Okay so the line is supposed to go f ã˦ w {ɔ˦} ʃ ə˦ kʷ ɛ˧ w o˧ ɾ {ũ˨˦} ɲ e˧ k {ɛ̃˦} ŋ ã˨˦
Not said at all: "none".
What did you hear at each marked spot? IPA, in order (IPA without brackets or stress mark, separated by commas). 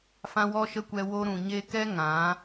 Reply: ɔ˦, ũ˨, ɛ˦